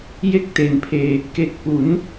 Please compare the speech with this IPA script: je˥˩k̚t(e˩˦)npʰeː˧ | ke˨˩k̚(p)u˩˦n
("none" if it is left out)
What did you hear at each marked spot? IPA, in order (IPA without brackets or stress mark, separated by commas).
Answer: e˩˦, p